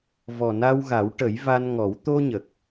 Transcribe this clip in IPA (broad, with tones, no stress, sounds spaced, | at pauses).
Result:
v ɔ˨˩ n a˧ w ɣ a˨˩˦ w ʈ ə˨˩˦ j v a˧ n ŋ ɔ˨˩˦ w t̪ o˧ ɲ ə˨˩ k̚